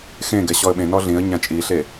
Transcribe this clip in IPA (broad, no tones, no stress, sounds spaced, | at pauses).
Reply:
x ẽ ɡ ɛ ɕ ɔ ə̯ ɓ ẽ n ɔ ɮ ĩ ə̯ ɲ ã t͡ʃʼ i ɬ e